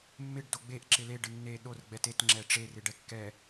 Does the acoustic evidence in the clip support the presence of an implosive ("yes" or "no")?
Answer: yes